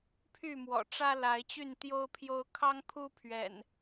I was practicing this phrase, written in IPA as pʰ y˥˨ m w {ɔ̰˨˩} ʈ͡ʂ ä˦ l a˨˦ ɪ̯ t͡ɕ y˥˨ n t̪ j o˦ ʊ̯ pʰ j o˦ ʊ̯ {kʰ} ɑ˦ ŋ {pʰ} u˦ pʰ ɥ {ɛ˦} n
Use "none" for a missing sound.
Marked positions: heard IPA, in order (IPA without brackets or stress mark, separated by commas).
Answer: ɔ̰˨˩, kʰ, pʰ, ɛ̰˨˩